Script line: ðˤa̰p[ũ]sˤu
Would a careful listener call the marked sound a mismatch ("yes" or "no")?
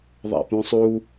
no